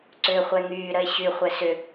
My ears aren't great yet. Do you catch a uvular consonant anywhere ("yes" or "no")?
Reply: yes